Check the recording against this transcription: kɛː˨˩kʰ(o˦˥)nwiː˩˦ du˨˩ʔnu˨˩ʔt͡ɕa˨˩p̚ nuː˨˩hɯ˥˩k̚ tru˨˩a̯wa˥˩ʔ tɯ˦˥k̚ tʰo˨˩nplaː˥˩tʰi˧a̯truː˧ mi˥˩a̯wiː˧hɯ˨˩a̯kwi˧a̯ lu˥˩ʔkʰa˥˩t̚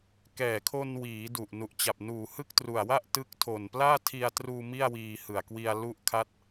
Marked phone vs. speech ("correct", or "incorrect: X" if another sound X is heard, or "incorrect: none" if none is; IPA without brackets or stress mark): incorrect: o˧